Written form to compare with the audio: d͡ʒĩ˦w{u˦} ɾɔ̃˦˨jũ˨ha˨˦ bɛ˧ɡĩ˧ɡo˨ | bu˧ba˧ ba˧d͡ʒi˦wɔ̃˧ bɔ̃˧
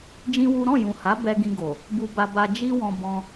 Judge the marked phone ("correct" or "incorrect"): correct